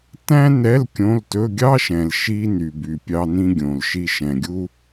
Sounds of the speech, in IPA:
tæ̃˥nɛ˧˥˧l kʲõ˧˥˧ltɵ˧˥˧ ɡʲɑ˥ʃɛ̃˨l ʃi˥ ny˨by˨ pʲɑ˥nĩ˥ɡʲõ˨lʃi˥ ʃɛ̃˨ɡʲu˥

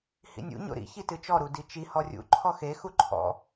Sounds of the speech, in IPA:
hḭnʲṵ ɲo̰ɾḭ çitɨt͡ʃɔ ɾudit͡ʃi hɔrʲṵ ǃʰɔxe xuǃʰɔ̰

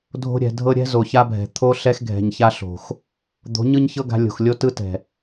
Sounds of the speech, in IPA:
dʱo̤˧ɾʲɛ̤˨dʱɤ˧ɾʲɛ̤˦ zo˨ça˦bʱɛ̤˨ t̪ʰo˦ɬɛ˦x ɡʱɛ̤˨ɲça˧ ɬo̤˨x | d̪o̤˨˦ɲɯ˦ɲçɤ˦ɡa̤˧ lʲo̤˨xlʲo˦tɯ˦tɛ̤˨

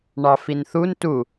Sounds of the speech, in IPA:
ɳɑfinθun tu

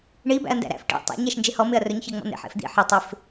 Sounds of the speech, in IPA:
ɳi bæ̰ɐ̯ndæ̰ɾæ̰f ʈḭ tˤæ̰ɲ æʃnd͡ʒehɔ mɪɐ̯rɵɲ çɜŋ͡mɔ̰n̪ḛ ħḛfd̪ḭ ħɪ tˤɪf

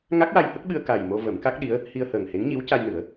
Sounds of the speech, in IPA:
ŋa˦˥k̚wa˧jhə˦˥k̚ɓɨ˧ə̯ ka˨˩jmo˧ və˨˩˦mka˦˥k̚ɗi˧˥ə̯ | hi˧ə̯həː˨˩ŋhe˧˥ŋɲi˧˥w ca˧jnɨ˨˩˦ə̯

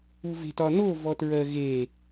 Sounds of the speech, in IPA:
uve̤tɒno vɔtɹɜɣe

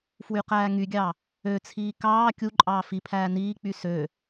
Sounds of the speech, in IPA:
fwyqæːŋyɡʲɑ | øt͡sʰiː kɑː kʲuǃʼɑː fipʰæː niːk͡py sø

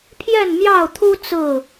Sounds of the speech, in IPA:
pʰjɛ˥˨nmjɑ˥˨ʊ̯t̪ʰu˦ t͡sɹ̩˥˨

